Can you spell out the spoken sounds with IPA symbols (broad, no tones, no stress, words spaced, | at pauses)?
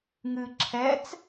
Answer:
ŋɨ ǁʰɛt͡s